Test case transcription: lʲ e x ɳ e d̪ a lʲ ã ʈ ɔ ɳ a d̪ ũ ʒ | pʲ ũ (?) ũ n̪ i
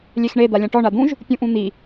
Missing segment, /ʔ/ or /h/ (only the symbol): ʔ